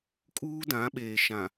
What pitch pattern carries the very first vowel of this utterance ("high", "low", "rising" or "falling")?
high